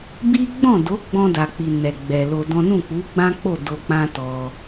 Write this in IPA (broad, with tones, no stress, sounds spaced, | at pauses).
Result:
b i˦ ɡ͡b ɔ̃˦˨ d o˨˦ ɡ͡b ɔ̃˧ d a˨ k͡p i˨ n ɛ˨ ɡ͡b ɛ˨ l o˧ d ɔ̃˦ n ũ˦˨ k͡p u˨˦ ɡ͡b ã˦ k͡p o˦˨ d o˧ k͡p ã˦ t ɔ˧